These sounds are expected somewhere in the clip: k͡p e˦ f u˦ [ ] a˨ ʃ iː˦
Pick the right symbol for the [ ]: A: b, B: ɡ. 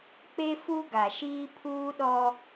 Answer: B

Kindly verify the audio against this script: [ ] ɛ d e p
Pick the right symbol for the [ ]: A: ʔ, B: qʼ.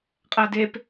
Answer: B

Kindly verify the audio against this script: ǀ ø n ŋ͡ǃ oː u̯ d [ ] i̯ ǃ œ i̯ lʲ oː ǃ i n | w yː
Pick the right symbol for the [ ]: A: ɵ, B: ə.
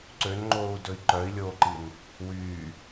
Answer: A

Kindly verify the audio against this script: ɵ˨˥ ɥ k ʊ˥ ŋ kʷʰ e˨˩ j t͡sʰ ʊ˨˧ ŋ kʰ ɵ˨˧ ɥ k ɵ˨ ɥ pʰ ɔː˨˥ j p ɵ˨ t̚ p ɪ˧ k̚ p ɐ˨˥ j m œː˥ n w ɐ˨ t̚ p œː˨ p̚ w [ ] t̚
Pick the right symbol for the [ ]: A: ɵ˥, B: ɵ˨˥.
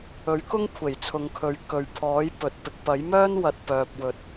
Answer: B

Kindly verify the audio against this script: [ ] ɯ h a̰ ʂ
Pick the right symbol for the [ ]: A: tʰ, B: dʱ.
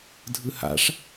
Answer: B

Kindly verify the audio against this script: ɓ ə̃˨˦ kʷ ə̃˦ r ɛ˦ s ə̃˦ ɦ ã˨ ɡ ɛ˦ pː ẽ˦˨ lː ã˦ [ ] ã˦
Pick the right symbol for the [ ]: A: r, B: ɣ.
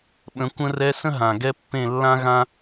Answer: B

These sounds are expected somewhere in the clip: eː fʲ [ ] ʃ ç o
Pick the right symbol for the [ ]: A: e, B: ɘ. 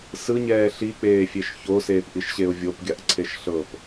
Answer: A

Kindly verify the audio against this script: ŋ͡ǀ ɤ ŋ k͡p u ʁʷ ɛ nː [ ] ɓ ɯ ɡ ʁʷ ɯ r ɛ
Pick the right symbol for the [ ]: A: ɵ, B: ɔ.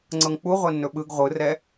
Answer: A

